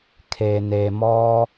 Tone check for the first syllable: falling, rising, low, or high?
low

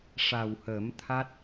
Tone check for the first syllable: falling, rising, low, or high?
low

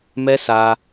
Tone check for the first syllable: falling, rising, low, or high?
high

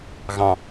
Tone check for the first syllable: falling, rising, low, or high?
low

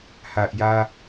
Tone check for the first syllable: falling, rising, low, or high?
low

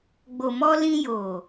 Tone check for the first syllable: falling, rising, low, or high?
low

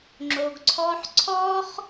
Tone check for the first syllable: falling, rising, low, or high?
low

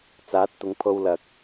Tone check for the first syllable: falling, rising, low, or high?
rising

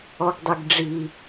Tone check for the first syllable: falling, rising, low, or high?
high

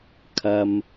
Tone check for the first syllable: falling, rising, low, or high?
low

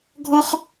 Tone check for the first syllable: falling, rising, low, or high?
high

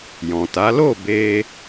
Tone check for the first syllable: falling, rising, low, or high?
low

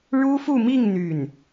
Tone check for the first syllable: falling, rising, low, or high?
high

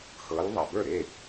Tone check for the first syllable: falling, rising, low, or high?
rising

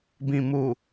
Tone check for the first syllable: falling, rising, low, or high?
low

